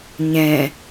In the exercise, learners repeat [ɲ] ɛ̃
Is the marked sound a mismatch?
no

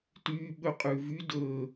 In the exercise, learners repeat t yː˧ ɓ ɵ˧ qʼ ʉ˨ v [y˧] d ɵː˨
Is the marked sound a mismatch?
no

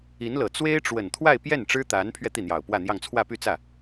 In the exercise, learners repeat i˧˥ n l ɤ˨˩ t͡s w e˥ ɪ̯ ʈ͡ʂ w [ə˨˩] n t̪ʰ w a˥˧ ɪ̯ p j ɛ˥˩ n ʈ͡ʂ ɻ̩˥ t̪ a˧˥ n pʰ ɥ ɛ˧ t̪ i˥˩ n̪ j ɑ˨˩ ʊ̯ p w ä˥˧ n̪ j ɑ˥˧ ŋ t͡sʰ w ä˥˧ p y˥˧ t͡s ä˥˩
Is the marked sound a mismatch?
no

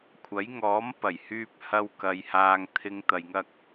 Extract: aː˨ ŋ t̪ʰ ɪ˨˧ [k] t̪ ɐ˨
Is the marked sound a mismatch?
yes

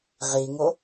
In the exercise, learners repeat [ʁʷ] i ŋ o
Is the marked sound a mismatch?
yes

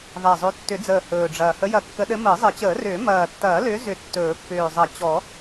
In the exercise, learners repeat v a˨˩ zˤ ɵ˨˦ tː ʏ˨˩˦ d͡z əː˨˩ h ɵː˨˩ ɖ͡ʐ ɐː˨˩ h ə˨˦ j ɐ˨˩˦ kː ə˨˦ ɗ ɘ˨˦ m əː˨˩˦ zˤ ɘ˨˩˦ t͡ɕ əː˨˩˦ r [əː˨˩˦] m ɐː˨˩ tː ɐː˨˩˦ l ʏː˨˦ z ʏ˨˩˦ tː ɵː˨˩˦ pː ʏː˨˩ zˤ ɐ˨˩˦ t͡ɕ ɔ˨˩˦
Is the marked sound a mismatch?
yes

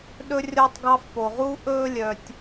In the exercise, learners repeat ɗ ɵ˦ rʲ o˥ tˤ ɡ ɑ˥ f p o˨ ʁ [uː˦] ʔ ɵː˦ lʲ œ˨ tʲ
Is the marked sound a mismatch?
no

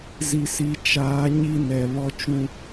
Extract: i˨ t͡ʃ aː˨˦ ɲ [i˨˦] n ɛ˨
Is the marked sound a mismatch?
yes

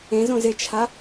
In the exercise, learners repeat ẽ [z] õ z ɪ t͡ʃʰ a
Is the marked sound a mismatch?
no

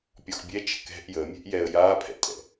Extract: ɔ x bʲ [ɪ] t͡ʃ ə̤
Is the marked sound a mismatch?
yes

